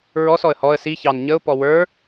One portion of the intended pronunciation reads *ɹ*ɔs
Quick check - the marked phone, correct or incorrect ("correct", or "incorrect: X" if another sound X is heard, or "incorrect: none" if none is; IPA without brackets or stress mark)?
correct